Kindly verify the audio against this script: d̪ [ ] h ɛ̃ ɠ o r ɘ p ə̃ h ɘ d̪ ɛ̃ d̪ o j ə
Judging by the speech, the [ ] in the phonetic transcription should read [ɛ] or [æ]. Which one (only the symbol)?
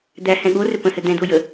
æ